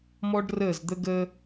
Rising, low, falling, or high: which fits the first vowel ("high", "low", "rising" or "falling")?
high